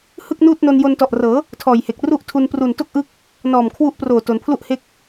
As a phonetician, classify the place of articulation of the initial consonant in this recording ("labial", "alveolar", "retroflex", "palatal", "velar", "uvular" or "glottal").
glottal